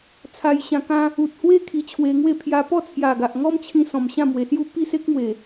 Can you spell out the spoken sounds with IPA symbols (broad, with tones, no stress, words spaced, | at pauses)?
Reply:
t͡sʰa˧jɕã˧kã˦ | u˨t̚hwe˦ kʰi˧t͡ɕʰwe˧ŋwe˥˧ pʰja˧pɔ˥˧ t͡sʰja˨˩ ɡa˨ʔŋɔ˦mt͡ɕʰĩ˧ sɔ̃˨˩mɕã˥˧mwe˨˩sju˥˧ pi˥˧se˦k̚mwe˨˩